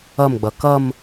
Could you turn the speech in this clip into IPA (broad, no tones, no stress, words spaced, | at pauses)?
ʌmɡ͡bʌ kʌm